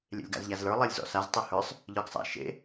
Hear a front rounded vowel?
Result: no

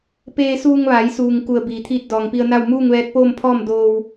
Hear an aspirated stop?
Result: yes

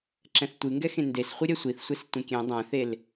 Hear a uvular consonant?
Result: yes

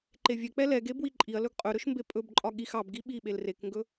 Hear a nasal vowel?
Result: no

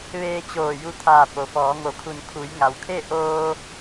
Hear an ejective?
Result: no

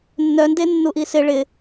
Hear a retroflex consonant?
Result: yes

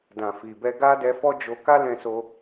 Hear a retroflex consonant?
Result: no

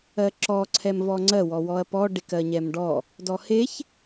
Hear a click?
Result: yes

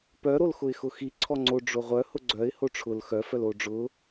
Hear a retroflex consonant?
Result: yes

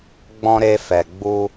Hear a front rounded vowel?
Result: no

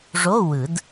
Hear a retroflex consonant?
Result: yes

